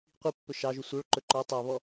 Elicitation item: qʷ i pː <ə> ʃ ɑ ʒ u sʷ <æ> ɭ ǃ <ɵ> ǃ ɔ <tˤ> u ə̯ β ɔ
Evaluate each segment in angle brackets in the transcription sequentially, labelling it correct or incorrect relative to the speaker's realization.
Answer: incorrect: ɵ, incorrect: œ, correct, correct

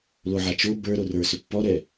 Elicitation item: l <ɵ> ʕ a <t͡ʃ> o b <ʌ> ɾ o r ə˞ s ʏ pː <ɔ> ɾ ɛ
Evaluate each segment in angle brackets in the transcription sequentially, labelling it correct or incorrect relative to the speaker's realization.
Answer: incorrect: o, correct, incorrect: ə˞, correct

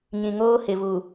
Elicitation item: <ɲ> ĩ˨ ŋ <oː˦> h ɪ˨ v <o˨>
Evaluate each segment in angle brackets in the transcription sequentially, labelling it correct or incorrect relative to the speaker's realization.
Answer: correct, correct, incorrect: u˨

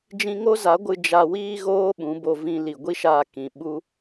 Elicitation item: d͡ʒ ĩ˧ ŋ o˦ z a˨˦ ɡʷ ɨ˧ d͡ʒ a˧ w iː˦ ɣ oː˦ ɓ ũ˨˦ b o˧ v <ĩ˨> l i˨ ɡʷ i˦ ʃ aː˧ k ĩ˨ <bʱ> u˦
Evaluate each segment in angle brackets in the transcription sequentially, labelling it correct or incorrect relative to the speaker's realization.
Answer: incorrect: ĩ˧, incorrect: ɓ

